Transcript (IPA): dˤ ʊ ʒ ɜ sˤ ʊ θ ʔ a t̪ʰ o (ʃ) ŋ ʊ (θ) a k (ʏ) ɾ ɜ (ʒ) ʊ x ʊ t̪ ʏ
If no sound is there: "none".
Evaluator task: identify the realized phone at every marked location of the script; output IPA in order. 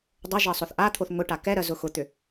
θ, ʈ, ɛ, z

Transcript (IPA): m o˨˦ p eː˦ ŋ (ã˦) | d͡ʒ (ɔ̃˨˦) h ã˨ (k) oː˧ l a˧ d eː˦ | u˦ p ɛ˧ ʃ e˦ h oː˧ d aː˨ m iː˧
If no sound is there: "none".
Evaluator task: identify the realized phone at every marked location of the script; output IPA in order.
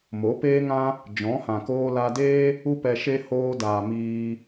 ã˦, ɔ̃˨˦, k

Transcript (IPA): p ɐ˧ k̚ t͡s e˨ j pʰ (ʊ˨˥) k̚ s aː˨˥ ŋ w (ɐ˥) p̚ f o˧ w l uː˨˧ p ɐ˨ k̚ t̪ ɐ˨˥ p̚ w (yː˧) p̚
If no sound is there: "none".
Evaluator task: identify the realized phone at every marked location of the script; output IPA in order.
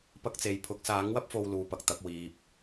ʊ˨˥, ɐ˥, iː˧

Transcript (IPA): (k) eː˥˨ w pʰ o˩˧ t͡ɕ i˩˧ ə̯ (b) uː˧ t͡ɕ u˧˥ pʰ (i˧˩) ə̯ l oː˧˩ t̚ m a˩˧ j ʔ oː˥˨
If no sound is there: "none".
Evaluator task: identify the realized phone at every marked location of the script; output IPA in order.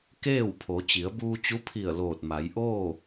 k, b, i˧˩

